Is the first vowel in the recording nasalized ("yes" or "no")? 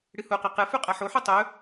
no